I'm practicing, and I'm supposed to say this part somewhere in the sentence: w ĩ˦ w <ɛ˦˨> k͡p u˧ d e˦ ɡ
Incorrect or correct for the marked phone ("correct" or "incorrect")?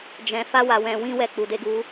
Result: correct